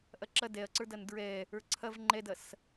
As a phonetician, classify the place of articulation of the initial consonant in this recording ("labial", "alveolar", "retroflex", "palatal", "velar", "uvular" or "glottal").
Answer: glottal